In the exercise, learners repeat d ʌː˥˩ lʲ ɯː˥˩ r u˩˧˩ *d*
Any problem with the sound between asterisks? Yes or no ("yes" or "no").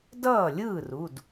no